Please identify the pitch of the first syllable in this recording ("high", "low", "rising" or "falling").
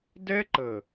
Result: high